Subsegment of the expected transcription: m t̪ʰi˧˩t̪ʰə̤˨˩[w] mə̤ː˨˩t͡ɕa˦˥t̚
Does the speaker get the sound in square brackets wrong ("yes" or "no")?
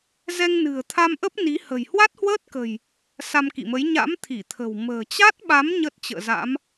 no